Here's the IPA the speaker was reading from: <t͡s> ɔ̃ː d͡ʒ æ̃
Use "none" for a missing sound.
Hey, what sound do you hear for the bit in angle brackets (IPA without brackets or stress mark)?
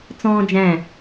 t͡s